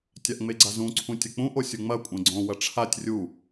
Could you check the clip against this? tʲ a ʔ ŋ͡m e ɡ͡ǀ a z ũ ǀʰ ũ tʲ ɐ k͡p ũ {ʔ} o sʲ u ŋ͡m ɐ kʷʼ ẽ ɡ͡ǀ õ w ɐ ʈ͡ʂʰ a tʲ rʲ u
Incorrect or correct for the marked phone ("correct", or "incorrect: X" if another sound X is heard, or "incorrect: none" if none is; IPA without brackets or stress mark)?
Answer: correct